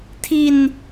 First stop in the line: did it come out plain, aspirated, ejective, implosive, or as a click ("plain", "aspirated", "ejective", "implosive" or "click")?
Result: aspirated